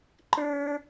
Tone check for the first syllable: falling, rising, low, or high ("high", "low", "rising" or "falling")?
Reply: high